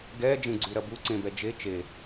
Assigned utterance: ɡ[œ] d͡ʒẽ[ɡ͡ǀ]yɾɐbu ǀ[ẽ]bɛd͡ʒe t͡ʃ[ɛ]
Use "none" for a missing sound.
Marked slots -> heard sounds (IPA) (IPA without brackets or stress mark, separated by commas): ɛ, ɡ͡ǀ, ẽ, e